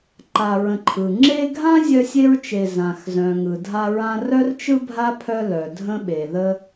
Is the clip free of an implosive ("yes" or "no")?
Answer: no